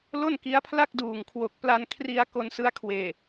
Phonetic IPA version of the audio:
l o˥˩ n k i˦˥ a̯ pʰ l a˥˩ k̚ d uː˨˩ ŋ kʰ w o˨˩ k̚ p l a˧ n kʰ r i˧ a̯ k o˧ n s ɯ˦˥ a̯ kʰ w eː˨˩

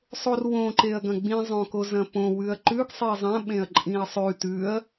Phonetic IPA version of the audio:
sˤ o r w õ ǃ e ɐ̯ ɡ ɐ̃ ɡ͡b ĩ zˤ õ k o z ɐ̃ p õ w ʉ ɐ̯ ǃ ʉ ɡ sˤ i zˤ ɐ̃ ɓ ẽ ɐ̯ ǃʼ ĩ ɐ̯ sˤ ʉ t ʉ ɐ̯

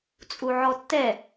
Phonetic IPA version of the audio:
t͡sʼ u ʕ ɔ tː ɛ

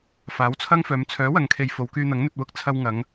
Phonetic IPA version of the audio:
f aː˨˥ w t͡sʰ ɐ˥ ŋ f œː˨˧ m t͡sʰ œː˨˥ w ɐ˨ ŋ kʰ e˨ j f o˨˧ w k yː˧ n̪ ɐ˨˥ ŋ n̪ ɵ˧ t̚ w ʊ˧ k̚ t͡sʰ ɐ˧ w ŋ ɐ˨˧ ŋ

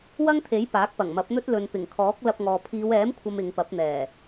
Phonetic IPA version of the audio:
w ɐ˥ ŋ t̪ʰ e˨˥ j p aː˨˥ k̚ p ɐ˨˩ ŋ m ɐ˨˥ p̚ n̪ ɵ˥ t̚ l ɵ˨ n p ɪ˨˩ ŋ kʰ ɔː˨˥ k̚ l ɐ˧ p̚ ŋ ɔː˨ pʰ iː˨˧ w ɛː˨˥ m kʷʰ ɐ˨ m ɪ˨˧ ŋ p ɐ˨˥ p̚ n̪ ɛː˨˩

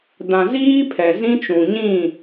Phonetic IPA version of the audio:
d ã˨ z iː˦ pʰ ɛ˨ z ĩ˦ t͡ʃ ũ˨ ɲ ĩ˦˨

